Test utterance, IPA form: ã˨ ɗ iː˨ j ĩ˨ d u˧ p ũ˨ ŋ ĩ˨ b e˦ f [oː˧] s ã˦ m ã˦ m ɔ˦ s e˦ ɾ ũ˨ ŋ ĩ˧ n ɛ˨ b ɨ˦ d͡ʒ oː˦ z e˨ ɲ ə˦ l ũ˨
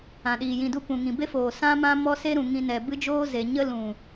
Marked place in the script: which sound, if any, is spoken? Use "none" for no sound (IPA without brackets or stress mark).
oː˨